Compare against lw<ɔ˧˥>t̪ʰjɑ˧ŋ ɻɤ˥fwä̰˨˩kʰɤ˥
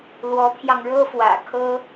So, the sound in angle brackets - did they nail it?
yes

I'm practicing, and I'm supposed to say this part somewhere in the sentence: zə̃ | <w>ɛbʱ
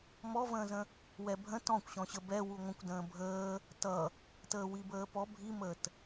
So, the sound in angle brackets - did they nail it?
yes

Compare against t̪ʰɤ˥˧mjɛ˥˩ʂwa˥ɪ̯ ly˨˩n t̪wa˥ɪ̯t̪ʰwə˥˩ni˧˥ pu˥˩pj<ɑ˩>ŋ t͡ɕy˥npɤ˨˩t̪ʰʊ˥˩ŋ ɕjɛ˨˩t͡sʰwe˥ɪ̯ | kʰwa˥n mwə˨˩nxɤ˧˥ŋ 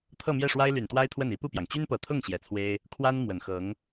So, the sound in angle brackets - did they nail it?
yes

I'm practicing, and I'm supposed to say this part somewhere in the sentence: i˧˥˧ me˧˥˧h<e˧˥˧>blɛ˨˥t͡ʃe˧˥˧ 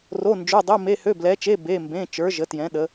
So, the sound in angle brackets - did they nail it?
no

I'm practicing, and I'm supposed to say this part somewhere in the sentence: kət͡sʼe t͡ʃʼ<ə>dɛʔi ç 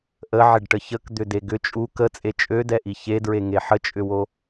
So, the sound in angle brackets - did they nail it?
no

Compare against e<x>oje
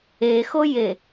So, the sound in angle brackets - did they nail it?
yes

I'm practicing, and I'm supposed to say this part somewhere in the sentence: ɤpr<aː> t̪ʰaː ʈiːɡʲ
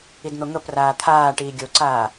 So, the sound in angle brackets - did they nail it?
yes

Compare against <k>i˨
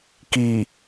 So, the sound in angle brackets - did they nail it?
yes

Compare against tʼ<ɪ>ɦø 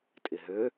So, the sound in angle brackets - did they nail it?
yes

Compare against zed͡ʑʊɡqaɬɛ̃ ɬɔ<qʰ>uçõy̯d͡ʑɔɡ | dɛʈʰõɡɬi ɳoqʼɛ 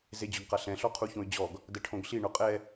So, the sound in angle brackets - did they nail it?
yes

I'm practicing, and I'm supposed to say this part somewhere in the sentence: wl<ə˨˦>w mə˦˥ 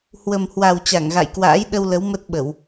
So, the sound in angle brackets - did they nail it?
yes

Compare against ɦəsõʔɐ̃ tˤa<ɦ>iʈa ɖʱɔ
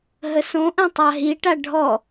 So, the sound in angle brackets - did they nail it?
yes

